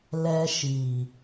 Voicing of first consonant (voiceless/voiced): voiced